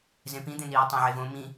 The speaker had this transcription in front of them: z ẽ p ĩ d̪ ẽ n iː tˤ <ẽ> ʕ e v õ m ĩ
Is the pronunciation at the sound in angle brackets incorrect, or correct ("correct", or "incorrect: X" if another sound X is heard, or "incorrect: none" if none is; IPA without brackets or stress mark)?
correct